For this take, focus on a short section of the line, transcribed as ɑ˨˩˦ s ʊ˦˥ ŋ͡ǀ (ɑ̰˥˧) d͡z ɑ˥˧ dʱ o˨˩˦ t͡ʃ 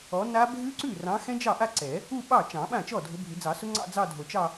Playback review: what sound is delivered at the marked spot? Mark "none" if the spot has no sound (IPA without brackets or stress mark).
ɑ̰˥˧